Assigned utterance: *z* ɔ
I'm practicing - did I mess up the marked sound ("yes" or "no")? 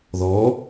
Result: yes